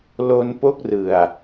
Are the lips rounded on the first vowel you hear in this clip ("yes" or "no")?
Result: yes